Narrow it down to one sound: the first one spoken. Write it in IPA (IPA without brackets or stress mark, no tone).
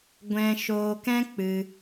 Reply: ɡʷ